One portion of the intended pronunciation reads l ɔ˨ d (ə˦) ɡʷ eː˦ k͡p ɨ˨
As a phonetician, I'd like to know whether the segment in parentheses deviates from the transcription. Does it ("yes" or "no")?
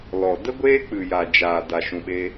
no